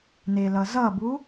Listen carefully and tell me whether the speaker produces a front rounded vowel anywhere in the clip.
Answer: no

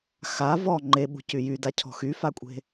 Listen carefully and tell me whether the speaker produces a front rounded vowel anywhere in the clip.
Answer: yes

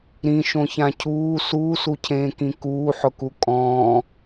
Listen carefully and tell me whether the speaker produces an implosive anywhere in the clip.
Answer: no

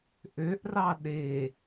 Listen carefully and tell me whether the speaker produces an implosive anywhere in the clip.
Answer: yes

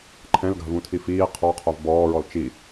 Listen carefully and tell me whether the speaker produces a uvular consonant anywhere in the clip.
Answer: yes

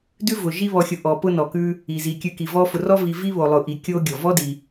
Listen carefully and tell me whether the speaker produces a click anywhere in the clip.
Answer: no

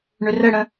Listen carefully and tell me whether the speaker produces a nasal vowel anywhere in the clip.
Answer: yes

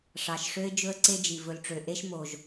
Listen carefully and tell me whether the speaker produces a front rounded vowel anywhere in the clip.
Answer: yes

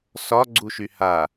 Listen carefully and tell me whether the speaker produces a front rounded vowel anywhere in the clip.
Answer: yes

